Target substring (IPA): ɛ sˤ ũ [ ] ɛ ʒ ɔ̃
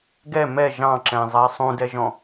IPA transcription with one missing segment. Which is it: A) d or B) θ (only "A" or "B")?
A